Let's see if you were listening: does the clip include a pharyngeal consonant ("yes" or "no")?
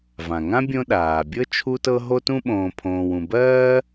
no